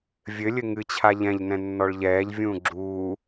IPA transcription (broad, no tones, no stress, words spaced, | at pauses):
vʲɘlʲɘ ŋɨt͡ɕʰa ʎɛ̃ʎnɛ̃nːɔɭ ʎɛːʎvʲũː ɡ͡ǁuː